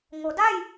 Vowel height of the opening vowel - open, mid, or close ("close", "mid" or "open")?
mid